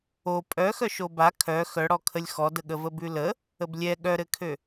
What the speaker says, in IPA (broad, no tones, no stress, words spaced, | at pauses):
o pʼœxœʃ oba kʰœ xœɽɔkʰəlʲ xɔdə ɠəvəbʉlə | əblʲɛ ɠœɾɘkʰø